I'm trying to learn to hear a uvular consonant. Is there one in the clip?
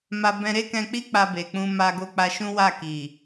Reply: no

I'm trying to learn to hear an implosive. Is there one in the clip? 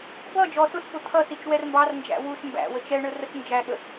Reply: yes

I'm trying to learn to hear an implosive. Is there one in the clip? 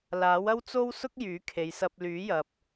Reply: no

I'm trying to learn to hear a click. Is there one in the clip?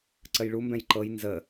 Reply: yes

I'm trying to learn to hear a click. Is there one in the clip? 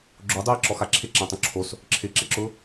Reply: yes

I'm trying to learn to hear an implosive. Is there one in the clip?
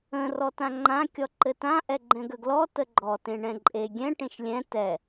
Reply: no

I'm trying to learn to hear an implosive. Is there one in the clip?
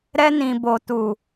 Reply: no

